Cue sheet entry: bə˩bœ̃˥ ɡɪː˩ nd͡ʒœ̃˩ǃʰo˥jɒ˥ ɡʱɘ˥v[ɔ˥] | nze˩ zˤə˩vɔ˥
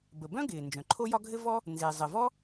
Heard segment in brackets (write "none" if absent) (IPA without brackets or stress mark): ɔ˥